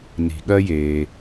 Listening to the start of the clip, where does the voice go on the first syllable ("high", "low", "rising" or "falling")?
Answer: low